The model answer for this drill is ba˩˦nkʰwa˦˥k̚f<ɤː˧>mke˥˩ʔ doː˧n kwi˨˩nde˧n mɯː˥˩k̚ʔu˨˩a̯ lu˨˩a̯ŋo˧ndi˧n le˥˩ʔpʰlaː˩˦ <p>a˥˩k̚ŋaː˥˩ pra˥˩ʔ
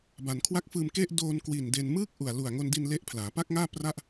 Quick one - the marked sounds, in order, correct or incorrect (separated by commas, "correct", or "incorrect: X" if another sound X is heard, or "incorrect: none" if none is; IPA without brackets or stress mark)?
incorrect: ɯː˧, correct